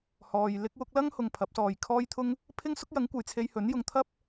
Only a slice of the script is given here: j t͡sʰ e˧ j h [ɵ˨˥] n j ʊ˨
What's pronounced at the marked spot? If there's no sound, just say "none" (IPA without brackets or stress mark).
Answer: ɵ˨˥